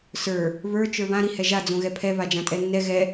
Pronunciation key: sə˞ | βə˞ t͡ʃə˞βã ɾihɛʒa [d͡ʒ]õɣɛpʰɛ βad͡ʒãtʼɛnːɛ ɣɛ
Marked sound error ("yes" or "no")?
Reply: yes